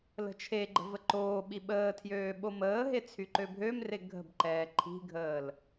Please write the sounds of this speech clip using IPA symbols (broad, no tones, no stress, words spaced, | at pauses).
lə̤t͡ʃʰeɡ͡ǃə̤ vəǃoːɓi ɓəːtʰjøː ɓoməːɦe t͡sʰyǃøbʱømre ɡʱə̤bǃɛː ǃʰi̤ɡʱəːl